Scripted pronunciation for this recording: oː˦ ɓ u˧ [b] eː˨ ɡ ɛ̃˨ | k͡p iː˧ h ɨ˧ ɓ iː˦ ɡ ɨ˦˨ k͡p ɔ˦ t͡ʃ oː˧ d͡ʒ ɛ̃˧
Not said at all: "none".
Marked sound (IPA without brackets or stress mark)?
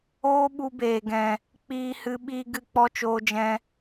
b